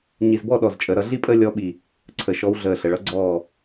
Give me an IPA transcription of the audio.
ɲ i˧˩ z b ɔ˥˧ ɗ ɔ˧˩ z t͡ʃʼ ə˩˧ ɾ ʌ˩˧ ɮ i˥˧ pʼ əː˥˧ lʲ ɔ˧˥ ɓ i˧˩ | ǀʰ ə˧˩ ʃ ɔ˧˥ w ɮ əː˧˩ ɬ ə˩˧ ɭ ʌ˥˧ ɡ͡ǀ ɔː˧˩

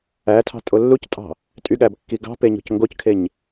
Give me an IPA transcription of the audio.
æ tʰ ɑ̤ tʼ o lː u c tʼ ɑ̤ | tʼ y ɠ æ b kː i ɡ ɑ̤ p e ɲ o̤ c ŋ ɡ o c kʰ e ɲ

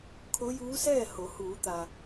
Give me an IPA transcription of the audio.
kʰ o˧˥ j uː˧˥ s ɛː˥˨ h o˩˧ h uː˩˧ t̪ a˩

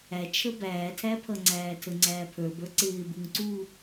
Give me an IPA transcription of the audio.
æ t͡ʃʰ ə b æː tʰ æ pʰ ʌ ŋ͡ǀ æː tʰ ə ŋ͡ǀ æː pʰ ə˞ b ə˞ ǀ ɪː b u ŋ ǀ uː

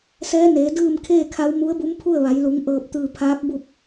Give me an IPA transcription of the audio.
s ɛː˧˥ n eː˩˧ d ɯː˥˨ m kʰ eː˥˨ kʰ a˧˥ w m u˧˥ ə̯ b u˧˥ m pʰ u˥˨ ə̯ ʋ a˩˧ j l u˩˧ ŋ ʔ ɤː˧˩ p̚ t̪ ɯː˧˩ pʰ aː˧˥ p̚ b u˥˨ p̚

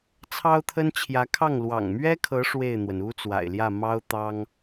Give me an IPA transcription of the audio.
t͡sʰ ɑ˥ ʊ̯ t̪ʰ ə˥ n t͡ɕʰ j ä˧˥ kʰ ɑ˥˩ ŋ l w ɑ̰˨˩ ŋ m ɥ ɛ˥ kʰ ɤ˧˥ ʂ w e˥˩ ɪ̯ n̪ w ə˩ n u˥ t͡s w a̰˨˩ ɪ̯ l j ä˥˩ m ɑ˥ ʊ̯ t̪ ɑ˥ ŋ

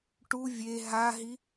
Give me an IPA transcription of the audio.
ʈ u vʲ e ɦ a ɦ i

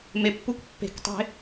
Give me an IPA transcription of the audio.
m e pː u k pː e̤ k tˤ e̤

